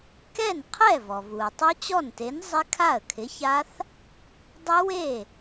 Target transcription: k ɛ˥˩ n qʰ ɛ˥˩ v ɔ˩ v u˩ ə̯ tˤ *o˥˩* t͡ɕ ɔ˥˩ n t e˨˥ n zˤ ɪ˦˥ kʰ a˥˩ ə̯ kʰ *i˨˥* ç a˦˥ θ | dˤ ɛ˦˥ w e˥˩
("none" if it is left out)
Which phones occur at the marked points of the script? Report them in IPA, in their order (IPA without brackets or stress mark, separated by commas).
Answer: o˦˥, ɪ˨˥